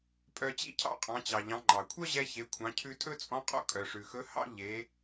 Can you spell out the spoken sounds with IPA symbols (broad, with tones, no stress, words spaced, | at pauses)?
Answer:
pʼœ˧t͡ɕḭ˥ cʰɑ̰˥qʼɑ̃˩˧t͡ɕɑ˩ʎɑ̃˩˧ ŋ͡ǃɑ˩kʷʰœ˥ʑɛ˧ çe˩˧kʷʰɑ̃˩˧cʰʉ˧ tʼɵ˥t͡sʼɔ̃˧˥qʼɔ̰˧˥ kʼœ˩ʂʉ˩xɵ˧˥ hɑ̰˥ ʎe˩˧